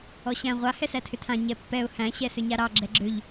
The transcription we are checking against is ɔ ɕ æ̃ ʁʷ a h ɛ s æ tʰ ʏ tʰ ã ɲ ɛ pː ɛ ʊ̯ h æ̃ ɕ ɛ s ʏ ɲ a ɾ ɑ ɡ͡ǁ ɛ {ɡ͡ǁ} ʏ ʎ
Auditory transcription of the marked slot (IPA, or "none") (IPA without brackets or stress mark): ɡ͡ǁ